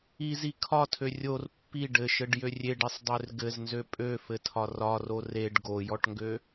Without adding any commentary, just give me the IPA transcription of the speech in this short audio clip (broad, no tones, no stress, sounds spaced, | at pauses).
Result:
i z i kʰ ɒ tʰ ø rʲ o r pː i ɖ ɘ ʃ ɘ ɖ j ø rʲ e ɖ i sˤ dˤ ø r ɡ ɘ z n z ø pʼ ø f ɘ tʰ ɒ r ɒ r o r e ɖ ɡ o j ɔ ʈ ŋ ɡ ø